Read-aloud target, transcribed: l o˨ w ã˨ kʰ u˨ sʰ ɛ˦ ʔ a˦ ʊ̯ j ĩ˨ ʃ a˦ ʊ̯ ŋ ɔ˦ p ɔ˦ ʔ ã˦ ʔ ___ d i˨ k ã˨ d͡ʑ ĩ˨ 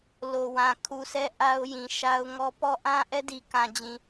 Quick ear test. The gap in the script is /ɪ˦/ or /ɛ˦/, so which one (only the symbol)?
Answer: ɛ˦